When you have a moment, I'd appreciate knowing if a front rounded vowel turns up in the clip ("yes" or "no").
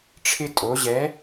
no